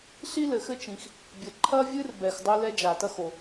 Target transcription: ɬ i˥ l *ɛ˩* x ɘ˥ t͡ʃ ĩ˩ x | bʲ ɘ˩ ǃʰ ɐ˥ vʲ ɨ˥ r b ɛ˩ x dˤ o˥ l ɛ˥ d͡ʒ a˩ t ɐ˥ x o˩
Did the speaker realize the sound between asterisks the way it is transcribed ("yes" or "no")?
no